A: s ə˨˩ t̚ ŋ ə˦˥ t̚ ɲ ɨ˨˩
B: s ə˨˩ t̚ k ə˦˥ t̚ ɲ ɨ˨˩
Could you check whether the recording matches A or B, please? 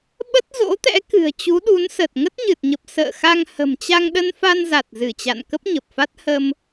A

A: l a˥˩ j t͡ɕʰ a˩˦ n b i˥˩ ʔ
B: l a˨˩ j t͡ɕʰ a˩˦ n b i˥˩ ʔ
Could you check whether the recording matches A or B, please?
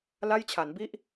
A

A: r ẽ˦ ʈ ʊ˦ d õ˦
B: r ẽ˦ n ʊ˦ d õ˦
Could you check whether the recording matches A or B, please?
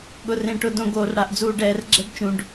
A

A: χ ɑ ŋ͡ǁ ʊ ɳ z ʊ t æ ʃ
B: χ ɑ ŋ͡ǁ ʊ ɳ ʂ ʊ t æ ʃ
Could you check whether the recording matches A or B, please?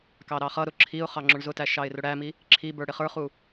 A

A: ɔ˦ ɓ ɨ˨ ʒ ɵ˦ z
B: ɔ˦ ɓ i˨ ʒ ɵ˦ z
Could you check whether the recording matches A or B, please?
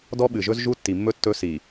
A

